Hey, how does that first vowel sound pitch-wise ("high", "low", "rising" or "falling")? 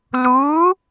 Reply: rising